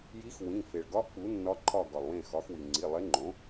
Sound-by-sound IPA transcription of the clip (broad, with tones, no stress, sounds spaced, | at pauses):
j i˧˥ x w ĩ˩˧˩ f e˩ ɭ ɡ ɒ˧˥ ʔ k͡p u˩˥ nː ɒ˧˥ ǃʰ ɒ˦˨ ɡ ɒ˩ lˠ w ẽ˦˨ x ɒ˩˥ x w i˩ ŋ͡ǀ i˩˧˩ lˠ e˧˥ ŋ͡ǃ õ˩˥